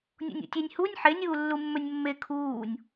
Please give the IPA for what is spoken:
nʲ o̰ nʲ ṵ tʲ e nʲ h u nʲ ħ e nʲ uː lː u mː ɵ nʲ mː e kʰ uː nʲ

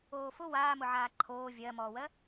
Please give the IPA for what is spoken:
oː f ʊ w aː m ʊ ʕ aː ǃʰ oː vʲ ɜ m ɔː w ɜ

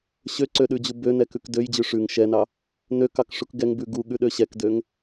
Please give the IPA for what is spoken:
ɕ ø ǀ ø ɗ ʉ d͡ʑ u b ø n ɛ k ʉ k d ø j d͡ʑ ʉ ʂ ʉ ŋ ʃ ɛ n ɑ | n ø k ɑ k ʂ u k ɡ ɛ ŋ b ʉ ɡ u ɠ ʉ ɗ ø ɕ ɛ k d ø ŋ

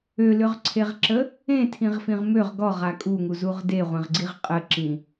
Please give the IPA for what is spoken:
ø l ʏ ʁ ǀʰ e ʁ ǁ ə | ẽ tʰ ĩ ʁ f ĩ ʁ m ø ʁ ɡ ɔ ʁ a kʼ u ŋ u z u ʁ d e ʁʷ ẽ ʁ ɡ͡ǀ i ʁ qʼ ə ǁ ĩ

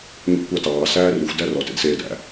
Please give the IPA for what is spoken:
ɲ ɔ̰ kʷ ɑ t ɑː s æː r y xʷ d æ r ɔ t ḛ d s eː d æ̰

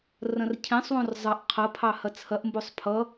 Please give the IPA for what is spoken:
r ɐ̃ r cʰ ẽ sˤ w õ r zˤ ʌ ʔ qʰ ɐ pʰ ɑ h ɐ t͡sʰ ɐ ʔ m b o sˤ pʰ ʌ

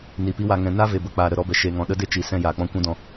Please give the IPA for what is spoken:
n i˨ p i˦ w a˧ ŋ ɛ̃˧ n a˦ v e˨ b ə˨ k͡p aː˨ ɾ ə˨ ɾ ɔ˧ b ɛ˨ ʃ e˨ ŋ ɔ̃˨ ɗ ə˦ d e˦ t͡ʃ i˨ s ɛ̃˧ j aː˨ k͡p ɔ̃˦ kʷ ũ˦ d ɔ̃˧

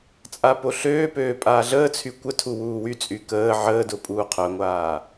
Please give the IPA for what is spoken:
t͡sʼ a p o ɬ øː p øː pʼ aː ɮ əː t͡sʰ y kʷ ə tʰ u w uː w y t͡sʼ y k əː ʕ əː d ʊ pʼ uː qʰ œ ŋʷ aː

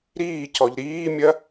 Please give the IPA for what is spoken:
ɾ iː c ɔ ʎ ɾ iː mʲ ɐ

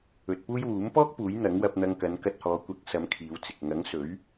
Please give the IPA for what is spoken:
ɵ˨ t̚ p uː˥ j w uː˨˥ m p ɔː˥ k̚ p uː˨˥ j n̪ ɐ˨˥ ŋ w ɐ˧ p̚ n̪ ɐ˧ ŋ k ɐ˨˧ n k ɐ˧ t̚ h ɔː˨˧ kʷ ɐ˨˥ k̚ s ɐ˨˧ m kʰ iː˨˧ w t͡s ɪ˨ k̚ ŋ ɐ˨˥ ŋ s ɵ˨˥ ɥ

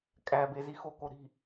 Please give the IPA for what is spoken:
kʼ æ b e z i x o k o ɾ i̤

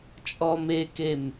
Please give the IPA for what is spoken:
t͡ʃʼ ɔ m e k e m

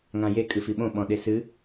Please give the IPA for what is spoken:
ŋ ã j e kʼ ɨ f i ɓ õ ɓ ɔ̃ ɗ e s ɨ

